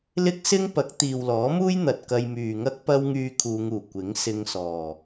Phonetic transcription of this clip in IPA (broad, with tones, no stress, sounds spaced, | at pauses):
l ɪ˥ k̚ s ɪ˥ ŋ p ɐ˨˥ k̚ t̪ iː˨ w l ɔː˨˥ m uː˥ j n̪ ɐ˧ t̚ k ɐ˧ j m yː˨ ŋ ɐ˥ k̚ p ɐ˧ w ŋ yː˨ kʰ uː˨˧ ŋ uː˨˩ kʷ ɪ˨˥ ŋ s ɪ˧ ŋ s ɔː˨˩